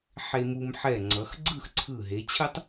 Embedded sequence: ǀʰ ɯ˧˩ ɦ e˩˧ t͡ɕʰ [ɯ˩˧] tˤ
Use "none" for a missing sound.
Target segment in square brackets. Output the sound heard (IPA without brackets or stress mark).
ɯ˥